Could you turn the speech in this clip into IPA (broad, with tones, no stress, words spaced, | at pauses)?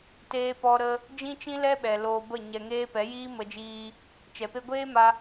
teː˧pɔ˧ɾə˧ | d͡ʒĩ˦t͡ʃĩ˦lɛ˦ɓɛ˨ loː˧bə˦˨ɲɛ˧ŋeː˦ pɛ˨˦jiː˦mə˧d͡ʒiː˧ | t͡ʃɛ˨pe˧ ɡʷeː˦ma˧